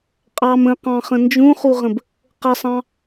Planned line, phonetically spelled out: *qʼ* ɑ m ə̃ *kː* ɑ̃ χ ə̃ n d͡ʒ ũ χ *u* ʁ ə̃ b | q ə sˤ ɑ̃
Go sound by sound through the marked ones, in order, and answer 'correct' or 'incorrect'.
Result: correct, incorrect: q, correct

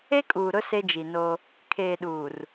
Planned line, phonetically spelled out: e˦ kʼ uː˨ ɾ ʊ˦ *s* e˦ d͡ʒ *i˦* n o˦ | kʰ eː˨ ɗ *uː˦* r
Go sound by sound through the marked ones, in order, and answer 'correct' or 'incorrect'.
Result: correct, incorrect: i˨, incorrect: uː˨

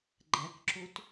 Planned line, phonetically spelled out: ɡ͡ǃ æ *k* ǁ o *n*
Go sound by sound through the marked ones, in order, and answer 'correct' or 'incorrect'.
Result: correct, incorrect: t

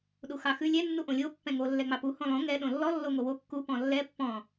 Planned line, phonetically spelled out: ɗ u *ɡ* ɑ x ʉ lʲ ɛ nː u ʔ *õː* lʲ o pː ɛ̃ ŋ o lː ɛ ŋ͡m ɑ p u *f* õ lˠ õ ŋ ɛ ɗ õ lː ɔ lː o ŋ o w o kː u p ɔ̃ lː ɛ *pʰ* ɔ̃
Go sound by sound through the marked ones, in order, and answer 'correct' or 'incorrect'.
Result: incorrect: x, incorrect: õ, incorrect: h, incorrect: pː

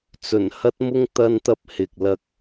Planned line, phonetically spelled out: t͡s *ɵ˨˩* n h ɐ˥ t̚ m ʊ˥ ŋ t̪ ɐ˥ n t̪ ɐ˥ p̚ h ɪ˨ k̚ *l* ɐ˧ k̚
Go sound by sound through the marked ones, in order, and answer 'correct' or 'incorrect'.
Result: correct, correct

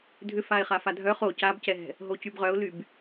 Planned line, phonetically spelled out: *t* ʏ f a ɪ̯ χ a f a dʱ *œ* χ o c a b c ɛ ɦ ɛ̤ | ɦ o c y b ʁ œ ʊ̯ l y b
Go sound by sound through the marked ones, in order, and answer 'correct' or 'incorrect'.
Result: incorrect: dʱ, correct

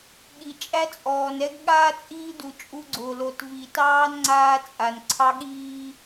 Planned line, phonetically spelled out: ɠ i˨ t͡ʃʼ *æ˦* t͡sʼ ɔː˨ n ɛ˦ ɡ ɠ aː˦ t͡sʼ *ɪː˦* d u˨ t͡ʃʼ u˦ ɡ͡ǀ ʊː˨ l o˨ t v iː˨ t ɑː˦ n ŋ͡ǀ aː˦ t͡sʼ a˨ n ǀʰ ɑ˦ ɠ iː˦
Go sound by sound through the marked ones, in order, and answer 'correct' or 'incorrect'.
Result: correct, incorrect: iː˦

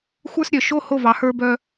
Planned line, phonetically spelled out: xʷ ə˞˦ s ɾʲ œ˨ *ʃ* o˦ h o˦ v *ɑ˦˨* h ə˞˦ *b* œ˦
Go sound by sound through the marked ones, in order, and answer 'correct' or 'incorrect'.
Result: correct, incorrect: ɑ˨, correct

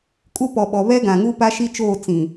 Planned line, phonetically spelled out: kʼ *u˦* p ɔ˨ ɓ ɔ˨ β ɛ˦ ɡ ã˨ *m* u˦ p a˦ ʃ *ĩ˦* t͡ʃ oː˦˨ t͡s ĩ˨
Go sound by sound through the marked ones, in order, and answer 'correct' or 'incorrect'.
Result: correct, incorrect: ŋ, incorrect: i˦

